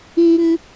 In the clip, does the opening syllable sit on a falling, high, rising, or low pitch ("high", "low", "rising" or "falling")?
high